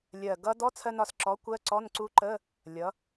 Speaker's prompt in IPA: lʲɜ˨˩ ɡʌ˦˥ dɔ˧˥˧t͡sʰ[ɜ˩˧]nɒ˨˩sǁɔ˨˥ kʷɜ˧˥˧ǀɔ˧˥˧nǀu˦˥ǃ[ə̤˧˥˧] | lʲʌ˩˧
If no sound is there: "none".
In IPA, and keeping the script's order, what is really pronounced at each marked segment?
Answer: ɜ˧, ə˧˥˧

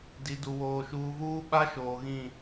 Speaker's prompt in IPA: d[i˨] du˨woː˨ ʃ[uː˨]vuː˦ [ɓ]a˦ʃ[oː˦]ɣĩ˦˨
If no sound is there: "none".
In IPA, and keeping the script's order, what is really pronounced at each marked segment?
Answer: i˨, uː˨, ɓ, oː˨

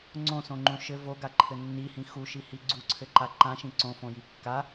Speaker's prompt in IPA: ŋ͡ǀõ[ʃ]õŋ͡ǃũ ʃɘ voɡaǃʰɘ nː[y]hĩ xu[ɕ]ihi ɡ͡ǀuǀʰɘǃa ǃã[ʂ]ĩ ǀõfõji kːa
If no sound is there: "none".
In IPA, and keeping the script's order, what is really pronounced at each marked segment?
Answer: s, i, ʃ, ʃ

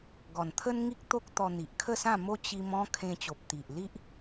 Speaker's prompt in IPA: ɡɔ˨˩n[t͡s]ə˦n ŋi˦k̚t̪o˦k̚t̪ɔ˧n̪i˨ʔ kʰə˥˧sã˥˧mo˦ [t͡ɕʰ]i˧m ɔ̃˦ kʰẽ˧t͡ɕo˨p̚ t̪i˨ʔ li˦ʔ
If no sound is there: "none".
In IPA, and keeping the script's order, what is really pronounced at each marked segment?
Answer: t̪ʰ, t͡ɕ

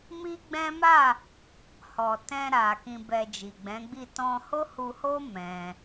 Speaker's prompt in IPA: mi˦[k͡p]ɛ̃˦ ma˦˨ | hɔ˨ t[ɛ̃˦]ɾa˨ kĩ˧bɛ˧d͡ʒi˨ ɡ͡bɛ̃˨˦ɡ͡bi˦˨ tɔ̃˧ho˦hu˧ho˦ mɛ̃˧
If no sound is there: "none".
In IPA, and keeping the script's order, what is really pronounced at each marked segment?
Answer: ɡ͡b, ɛ̃˧

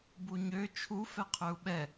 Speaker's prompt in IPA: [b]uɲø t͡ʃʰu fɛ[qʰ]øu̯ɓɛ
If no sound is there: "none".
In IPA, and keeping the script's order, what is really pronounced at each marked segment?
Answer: b, qʰ

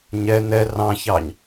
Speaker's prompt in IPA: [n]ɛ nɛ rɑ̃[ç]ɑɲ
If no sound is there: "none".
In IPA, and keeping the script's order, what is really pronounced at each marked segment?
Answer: ɲ, ç

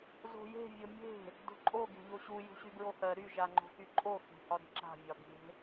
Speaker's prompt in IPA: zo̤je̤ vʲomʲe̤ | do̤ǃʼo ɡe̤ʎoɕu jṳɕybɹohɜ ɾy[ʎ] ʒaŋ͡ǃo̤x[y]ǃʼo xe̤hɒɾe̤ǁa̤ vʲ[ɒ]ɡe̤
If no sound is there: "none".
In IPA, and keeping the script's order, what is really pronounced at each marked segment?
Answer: none, y, ɒ

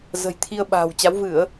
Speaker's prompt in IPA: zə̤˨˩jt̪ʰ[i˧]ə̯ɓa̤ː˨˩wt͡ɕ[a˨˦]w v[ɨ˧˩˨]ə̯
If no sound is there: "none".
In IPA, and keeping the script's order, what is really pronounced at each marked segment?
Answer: i˧, a˨˦, ɨ˧˩˨

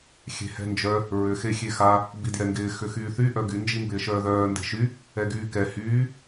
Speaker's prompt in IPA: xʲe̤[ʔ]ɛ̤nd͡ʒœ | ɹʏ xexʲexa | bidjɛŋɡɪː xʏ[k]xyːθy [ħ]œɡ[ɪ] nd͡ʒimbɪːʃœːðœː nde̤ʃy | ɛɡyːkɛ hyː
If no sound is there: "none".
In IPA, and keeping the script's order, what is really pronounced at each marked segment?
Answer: h, none, ʔ, y

